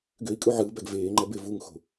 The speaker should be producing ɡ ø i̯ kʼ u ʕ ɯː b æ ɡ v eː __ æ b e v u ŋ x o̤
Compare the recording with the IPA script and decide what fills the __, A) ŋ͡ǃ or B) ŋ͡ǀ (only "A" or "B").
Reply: A